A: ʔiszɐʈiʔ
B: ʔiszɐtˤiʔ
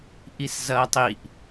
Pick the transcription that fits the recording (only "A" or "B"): B